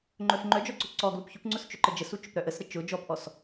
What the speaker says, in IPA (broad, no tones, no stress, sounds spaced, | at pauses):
ŋ͡ǃ œ f ŋ͡ǃ œ d͡ʒ ɔ ǀ ʊ ǀ ɔ ɡ l u p ç ʏ p ŋ͡ǀ ʊ s t͡ʃ ʏ ǃ ə d͡ʒ ə s u t͡ʃ ʏ p ɾ œ ʔ ə s ɾ ə t͡ʃ ʊ d͡ʒ ɔ p ʔ ɔ s